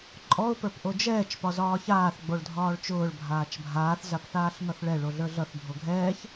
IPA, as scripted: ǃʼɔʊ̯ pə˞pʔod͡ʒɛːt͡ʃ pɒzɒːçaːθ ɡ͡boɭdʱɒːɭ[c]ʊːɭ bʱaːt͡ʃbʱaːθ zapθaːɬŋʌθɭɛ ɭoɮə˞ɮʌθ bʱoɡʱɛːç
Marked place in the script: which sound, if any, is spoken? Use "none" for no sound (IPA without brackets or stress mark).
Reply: t͡ʃ